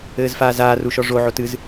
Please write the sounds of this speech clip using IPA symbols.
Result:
ɘː z f aː z aː r u ʃ ɔ ʐ o ʕ o t ɨ z

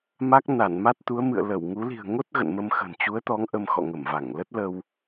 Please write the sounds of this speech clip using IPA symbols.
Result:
m a˦˥ k̚ n a˧˩ n m a˦˥ t̚ t̪ u˨˦ ə̯ m ɨ̰˧˨ ə̯ l ə˧˩ w ŋ u˨˦ l i̤˨˩ ə̯ ŋ o˦˥ t̚ ɣ ə̰˧˨ n m ə˧ m x ə̤˨˩ n t͡ɕ u˨˦ ə̯ t̪ ɔ˨˦ ŋ ʔ ə˧ m x ɔ̰˧˨ ŋ ə˧˩ m v a˧˩ ŋ l ə˦˥ t̚ l ə˧ w

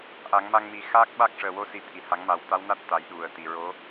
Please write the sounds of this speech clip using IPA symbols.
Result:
ʔ a˨˩˦ ŋ m a˧ ŋ m i˨˩˦ x aː˦˥ k̚ ɓ a˦˥ k̚ ʂ əː˨˩ w o˧˥ s i˨˩ t̪ʰ i˨˩˨ h a˨˩˦ ŋ m a˨˩ w t̪ a˧˥ w n a˦˥ t̚ t̪ a˨˩˦ j ɗ u˨˩ ə̯ t̪ i˨˩˨ ɹ o˧˥

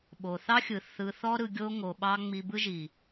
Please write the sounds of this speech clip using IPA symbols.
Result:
ɓ o˨ θ ɑ˦ xʲ ɯ˨ θ ɯ˧ θ ɔ˦ ɾ ɯ˧ ɡʲ o˦ ŋ o˧ ɓ ɑ˦ ŋ͡m i˧ b ɯ˦ ʒ i˨

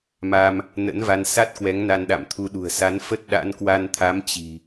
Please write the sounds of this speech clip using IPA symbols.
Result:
m a˧ m | n ə̰˧˥ n v a˧ n s a˦˥ t̚ k w ɛ˨˦ ŋ n a˧ n ɗ a̰˧˨ m t̪ʰ u˨˦ ɗ ṳ˨˩ ə̯ s a˨˦ n f ə˦˥ t̚ ɗ a̰˧˥ n k w a˧ n t̪ʰ a˨˦ m t͡ɕ i̤˨˩

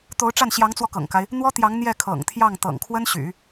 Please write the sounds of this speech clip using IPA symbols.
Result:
t̪ o˧˥ ʊ̯ ʈ͡ʂ a˥˩ n ɕ j ɑ˧˥ ŋ t͡s w ɔ˧ k ɤ̰˨˩ ŋ k a˦ ɪ̯ | n̪ w ɔ˥ t̪ j ɑ˧˥ ŋ n̪ j ɛ˥˩ kʰ ɤ̰˨˩ ŋ t̪ʰ j ɑ˥˩ ŋ t̪ ɤ̰˨˩ ŋ kʰ w ə˥ n ɕ y̰˨˩˦

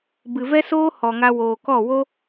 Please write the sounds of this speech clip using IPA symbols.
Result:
b ɨ˨ v ɛ˦ s oː˦ h ɔ˨ ŋ a˧ w oː˨ k ɔ˦˨ w o˦

